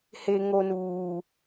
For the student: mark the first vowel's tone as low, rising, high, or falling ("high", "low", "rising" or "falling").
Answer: low